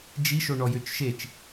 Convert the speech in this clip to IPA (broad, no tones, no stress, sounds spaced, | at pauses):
d͡ʒ i ʃ o ɳ ɔ j ø t͡ʃ ʃ e t͡ʃ